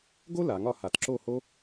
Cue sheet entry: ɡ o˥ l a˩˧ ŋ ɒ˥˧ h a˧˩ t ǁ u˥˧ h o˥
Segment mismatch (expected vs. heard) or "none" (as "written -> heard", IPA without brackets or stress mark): u˥˧ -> o˥˧